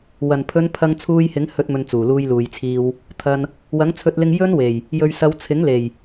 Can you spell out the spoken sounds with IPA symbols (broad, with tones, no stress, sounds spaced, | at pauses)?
w ɐ˨˩ n pʰ ɵ˨˧ n pʰ ɐ˧ ŋ t͡sʰ uː˧ j h ɪ˨˥ ŋ h ɵ˧ t̚ m ɵ˨ n t͡s uː˨˩ l uː˧ j l uː˨ j t͡sʰ iː˧ w | t̪ʰ ɐ˧ n | w ɐ˨˥ ŋ t͡sʰ ɵ˧ t̚ l ɪ˧ ŋ j ɵ˥ n w e˨˩ j | j ɵ˨ ɥ s ɐ˨˧ w t͡sʰ ɪ˨˥ ŋ l e˨˩ j